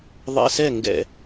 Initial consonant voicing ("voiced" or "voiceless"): voiced